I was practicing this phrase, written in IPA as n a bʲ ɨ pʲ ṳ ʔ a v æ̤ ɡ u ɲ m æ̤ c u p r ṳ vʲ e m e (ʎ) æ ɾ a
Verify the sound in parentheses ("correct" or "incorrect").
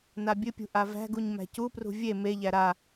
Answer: correct